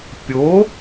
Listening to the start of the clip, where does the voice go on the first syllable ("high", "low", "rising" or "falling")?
rising